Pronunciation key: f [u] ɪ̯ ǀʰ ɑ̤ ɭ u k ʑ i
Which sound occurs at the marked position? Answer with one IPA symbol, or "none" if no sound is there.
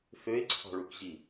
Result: ø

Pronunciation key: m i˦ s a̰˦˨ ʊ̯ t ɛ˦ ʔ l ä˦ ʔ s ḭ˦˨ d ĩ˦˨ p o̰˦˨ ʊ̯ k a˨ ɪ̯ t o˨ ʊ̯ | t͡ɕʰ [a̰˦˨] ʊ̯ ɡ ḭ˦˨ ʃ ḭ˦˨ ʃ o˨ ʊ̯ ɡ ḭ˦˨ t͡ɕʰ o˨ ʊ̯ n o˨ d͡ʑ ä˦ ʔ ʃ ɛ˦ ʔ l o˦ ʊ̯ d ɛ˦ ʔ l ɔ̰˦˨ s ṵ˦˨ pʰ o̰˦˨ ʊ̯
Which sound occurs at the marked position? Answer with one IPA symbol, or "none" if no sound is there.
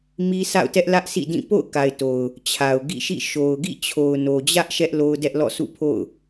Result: a˨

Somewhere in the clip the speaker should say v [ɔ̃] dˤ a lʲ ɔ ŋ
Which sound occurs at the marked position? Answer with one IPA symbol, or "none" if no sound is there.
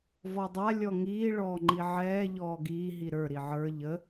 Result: ɔ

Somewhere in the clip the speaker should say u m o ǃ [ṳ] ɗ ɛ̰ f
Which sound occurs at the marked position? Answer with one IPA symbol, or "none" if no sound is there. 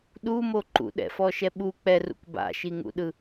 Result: ṵ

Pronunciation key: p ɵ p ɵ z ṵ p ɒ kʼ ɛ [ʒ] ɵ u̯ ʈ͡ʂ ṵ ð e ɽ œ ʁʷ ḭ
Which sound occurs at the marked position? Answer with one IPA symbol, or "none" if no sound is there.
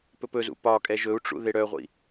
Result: ʒ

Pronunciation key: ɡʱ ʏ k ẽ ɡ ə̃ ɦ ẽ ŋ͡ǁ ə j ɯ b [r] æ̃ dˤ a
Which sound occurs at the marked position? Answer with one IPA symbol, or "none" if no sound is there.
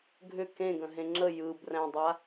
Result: r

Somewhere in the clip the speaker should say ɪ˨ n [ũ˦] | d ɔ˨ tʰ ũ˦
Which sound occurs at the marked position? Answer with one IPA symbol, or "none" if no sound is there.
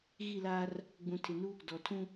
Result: u˦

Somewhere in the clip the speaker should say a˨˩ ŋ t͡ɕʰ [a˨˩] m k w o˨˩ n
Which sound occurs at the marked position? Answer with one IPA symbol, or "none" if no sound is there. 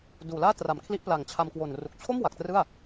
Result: a˧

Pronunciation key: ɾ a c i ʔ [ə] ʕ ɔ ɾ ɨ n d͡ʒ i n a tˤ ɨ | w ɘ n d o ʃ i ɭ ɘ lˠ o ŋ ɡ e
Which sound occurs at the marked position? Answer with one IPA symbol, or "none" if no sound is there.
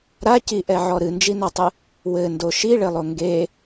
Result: ɛ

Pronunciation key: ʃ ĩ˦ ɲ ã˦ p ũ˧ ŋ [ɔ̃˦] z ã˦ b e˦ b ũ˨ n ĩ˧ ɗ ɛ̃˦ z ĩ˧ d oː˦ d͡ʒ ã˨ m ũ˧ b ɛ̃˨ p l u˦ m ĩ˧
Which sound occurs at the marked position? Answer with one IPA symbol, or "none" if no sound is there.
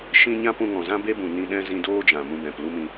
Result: ɔ̃˨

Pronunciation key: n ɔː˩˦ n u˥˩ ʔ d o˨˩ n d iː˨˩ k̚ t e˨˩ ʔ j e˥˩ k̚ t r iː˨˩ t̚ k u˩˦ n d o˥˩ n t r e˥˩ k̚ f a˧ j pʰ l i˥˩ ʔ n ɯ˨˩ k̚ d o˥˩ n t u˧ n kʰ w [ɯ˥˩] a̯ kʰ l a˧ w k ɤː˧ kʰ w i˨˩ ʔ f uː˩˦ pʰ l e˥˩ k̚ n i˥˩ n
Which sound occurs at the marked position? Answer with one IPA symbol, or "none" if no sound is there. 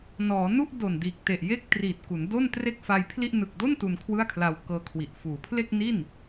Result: ɯ˥˩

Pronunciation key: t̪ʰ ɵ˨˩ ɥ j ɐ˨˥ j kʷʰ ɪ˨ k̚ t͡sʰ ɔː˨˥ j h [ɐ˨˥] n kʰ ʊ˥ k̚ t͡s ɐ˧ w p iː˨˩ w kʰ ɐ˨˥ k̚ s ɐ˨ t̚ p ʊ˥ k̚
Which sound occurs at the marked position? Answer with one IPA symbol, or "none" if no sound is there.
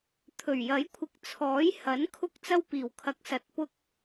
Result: ɐ˨˥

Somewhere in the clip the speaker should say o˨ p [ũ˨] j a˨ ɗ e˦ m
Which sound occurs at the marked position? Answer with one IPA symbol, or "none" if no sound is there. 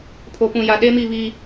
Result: ũ˨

